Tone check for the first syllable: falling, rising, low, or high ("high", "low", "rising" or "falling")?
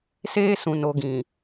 high